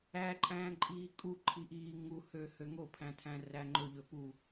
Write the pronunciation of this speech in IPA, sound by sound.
æ ǃʼ æ̃ː ǃʼ iː kʼ u ǃʰ i ʔ iː ŋ u h ø h ø ŋ o pʰ æ̃ tʰ æ̃ r æ ŋ͡ǃ ɵ ʎ ɵ p u

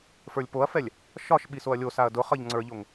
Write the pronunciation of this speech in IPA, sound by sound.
f ə˞ lʲ p o ɐ̯ f ɛ lʲ | ʃ ɒ ʃ ɓ i s o ɐ̯ lʲ o s a ɐ̯ d ʊ χ ʌ ʎ ŋ͡ǀ ə˞ ʎ o ŋ

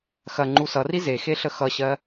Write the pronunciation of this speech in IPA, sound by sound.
x ɐ ŋ͡ǃ u s ʌ r i z e x e ɬ ə x ʌ ɕ ɜ

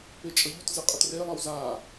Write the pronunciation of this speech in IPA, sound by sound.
p e t͡ʃʼ ʌ ʎ u t z ɯ qʼ ʌ t r e lˠ ʌ w z a

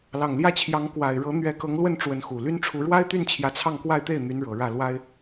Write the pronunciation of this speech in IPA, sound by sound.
l ɑ˨˩ ŋ l j ä˥˩ t͡ɕʰ j ɑ˧˥ ŋ k w a˨˩ ɪ̯ ɻ ɤ˧˥ n̪ ɥ ɛ˧˥ k ɤ˧˥ ŋ l w ə˥˩ n ʈ͡ʂ w ə˧˥ n x u˨˩ l y˥ n ʈ͡ʂʰ u˧˥ ɻ w a˥ ɪ̯ t̪ y˥˩ n t͡ɕʰ j ä˧˥ t͡sʰ ɑ˥˧ ŋ k w a˥˧ ɪ̯ t̪ e˥˩ ɪ̯ n̪ y˧˥ n ɻ ɤ˨˩ ɻ ä˥˩ l w a˥ ɪ̯

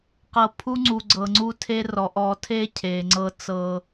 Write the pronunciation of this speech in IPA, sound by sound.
q ɤ˨ pʰ u˦ ŋ͡ǀ u˨ ɡ͡ǀ ɤ˨ ŋ͡ǀ u˦ tʰ e˦ r ɔ˨ ʔ ɔ˨ tʰ e˦ cʰ e˨ ŋ͡ǀ ɤ˦ t͡s ɤ˦

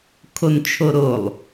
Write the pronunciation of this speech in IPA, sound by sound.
kʰ o n t͡ʃʰ o ɾ o lˠ

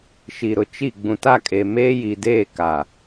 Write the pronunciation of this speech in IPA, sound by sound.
ʃ i˨ ɾ ʊ˨ t͡ʃ i˦˨ ɡ͡b ũ˨ t a˦˨ kʼ eː˨ m eː˦ j i˨ d eː˦˨ k a˨

